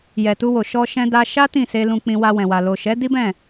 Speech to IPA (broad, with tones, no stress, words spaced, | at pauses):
jɛ˨tu˧ wo˨ ʃɔ˧ ʃɛ̃˦da˦ ʃa˦ tĩ˦˨se˧ lũ˧k͡pĩ˧ wa˧wɛ̃˨wa˨ lo˨ʃɛ˨˦ di˦bɛ̃˦˨